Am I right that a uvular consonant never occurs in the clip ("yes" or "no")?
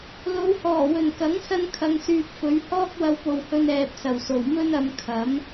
yes